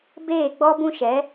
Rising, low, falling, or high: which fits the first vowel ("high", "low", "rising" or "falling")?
falling